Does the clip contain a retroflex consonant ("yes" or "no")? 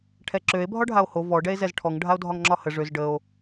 yes